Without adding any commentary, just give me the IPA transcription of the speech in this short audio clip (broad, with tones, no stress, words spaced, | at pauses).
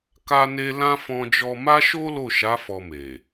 ka˦ne˦ lã˦ fɔ̃˧d͡ʒɔ˧ma˦ʃo˦ lo˦˨ʃa˨˦ fɔ˧me˨